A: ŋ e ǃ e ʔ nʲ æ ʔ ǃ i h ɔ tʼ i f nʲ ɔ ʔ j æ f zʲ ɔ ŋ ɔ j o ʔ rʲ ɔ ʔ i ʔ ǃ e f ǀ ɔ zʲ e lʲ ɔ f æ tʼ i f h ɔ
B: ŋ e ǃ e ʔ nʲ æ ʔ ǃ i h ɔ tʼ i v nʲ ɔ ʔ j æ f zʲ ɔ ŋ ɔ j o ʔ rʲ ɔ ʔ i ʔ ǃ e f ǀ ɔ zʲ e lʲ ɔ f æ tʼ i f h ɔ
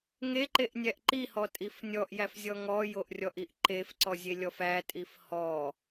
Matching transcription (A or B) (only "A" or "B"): A